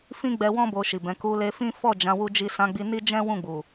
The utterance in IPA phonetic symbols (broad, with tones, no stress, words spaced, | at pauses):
fĩ˦ɡ͡bɛ˧wɔ̃˦ bo˧ʃi˨bɛ̃˨˦ ku˧le˧ fĩ˦ fɔ˦˨d͡ʒã˨˦ wu˧d͡ʒi˧ sã˧ɡ͡bi˧ni˦ d͡ʒɛ̃˦ wũ˦˨ɡ͡bu˨